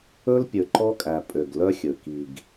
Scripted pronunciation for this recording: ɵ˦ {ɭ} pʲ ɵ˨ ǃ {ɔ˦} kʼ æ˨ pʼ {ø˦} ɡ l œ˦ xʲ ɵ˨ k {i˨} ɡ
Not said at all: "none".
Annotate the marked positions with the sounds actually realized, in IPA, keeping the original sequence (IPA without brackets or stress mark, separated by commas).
l, ɔ˦, ø˨, i˨